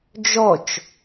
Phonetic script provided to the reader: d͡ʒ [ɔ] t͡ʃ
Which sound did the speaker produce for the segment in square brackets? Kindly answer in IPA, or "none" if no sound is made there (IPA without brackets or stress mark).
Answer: ɔ